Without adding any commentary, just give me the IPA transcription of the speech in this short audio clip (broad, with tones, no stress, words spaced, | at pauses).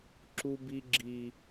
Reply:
ǁu˦bi˦ɡ͡ǁi˦